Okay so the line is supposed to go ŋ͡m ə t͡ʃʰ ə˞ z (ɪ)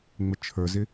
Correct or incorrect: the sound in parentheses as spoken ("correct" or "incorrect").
correct